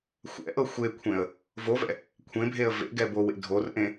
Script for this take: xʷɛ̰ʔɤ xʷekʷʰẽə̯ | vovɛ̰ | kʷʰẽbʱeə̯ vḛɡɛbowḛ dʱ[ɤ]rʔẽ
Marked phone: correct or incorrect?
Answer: incorrect